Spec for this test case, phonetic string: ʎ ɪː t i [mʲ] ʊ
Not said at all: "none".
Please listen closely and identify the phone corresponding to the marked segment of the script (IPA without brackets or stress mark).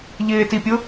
pʲ